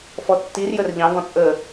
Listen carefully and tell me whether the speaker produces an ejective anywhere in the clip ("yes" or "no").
yes